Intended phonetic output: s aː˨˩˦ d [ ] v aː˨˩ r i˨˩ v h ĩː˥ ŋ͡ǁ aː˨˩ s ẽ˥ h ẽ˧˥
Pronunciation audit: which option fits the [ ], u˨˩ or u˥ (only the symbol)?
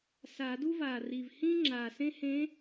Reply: u˥